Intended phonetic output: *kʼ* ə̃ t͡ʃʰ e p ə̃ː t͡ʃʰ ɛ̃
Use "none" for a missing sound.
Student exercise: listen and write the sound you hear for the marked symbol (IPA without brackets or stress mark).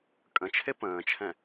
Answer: kʼ